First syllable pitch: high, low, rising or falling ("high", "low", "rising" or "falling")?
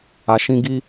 low